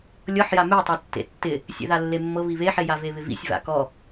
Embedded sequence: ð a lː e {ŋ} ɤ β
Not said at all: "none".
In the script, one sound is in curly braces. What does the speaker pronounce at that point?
mː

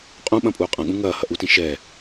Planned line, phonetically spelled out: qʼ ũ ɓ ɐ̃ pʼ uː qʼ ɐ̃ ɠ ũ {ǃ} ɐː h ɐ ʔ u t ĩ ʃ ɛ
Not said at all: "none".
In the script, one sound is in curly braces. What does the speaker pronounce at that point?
ŋ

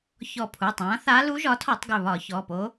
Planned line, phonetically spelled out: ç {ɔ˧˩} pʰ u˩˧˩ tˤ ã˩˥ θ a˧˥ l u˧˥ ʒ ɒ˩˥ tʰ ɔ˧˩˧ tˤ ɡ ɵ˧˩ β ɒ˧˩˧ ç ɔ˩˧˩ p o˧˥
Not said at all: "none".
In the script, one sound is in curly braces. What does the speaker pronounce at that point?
ɔ˧˩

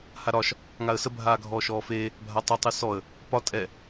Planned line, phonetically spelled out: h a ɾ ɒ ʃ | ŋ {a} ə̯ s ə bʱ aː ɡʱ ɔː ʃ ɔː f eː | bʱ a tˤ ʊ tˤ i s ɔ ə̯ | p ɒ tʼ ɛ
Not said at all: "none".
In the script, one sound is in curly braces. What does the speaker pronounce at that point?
a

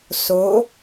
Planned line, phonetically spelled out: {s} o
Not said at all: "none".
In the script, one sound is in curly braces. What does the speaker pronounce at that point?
s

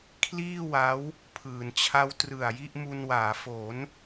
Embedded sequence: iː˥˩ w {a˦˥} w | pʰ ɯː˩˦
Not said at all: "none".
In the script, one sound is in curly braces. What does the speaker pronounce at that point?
a˦˥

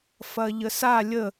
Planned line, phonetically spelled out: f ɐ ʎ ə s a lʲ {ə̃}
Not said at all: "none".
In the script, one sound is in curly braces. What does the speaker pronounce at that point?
ə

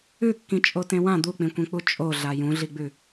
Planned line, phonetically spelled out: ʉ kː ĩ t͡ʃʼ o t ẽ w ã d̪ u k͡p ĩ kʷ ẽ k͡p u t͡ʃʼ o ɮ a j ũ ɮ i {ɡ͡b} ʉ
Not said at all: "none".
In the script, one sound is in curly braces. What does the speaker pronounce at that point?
ɡ͡b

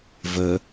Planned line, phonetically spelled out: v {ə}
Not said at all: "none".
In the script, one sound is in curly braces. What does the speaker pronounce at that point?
ə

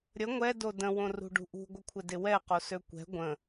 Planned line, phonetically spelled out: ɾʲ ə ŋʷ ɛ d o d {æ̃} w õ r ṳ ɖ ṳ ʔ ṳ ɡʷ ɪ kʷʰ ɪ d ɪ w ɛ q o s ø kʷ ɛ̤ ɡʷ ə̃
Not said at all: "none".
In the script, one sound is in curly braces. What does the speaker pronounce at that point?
ə̃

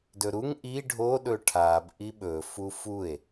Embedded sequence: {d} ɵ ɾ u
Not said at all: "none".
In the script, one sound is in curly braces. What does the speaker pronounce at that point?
d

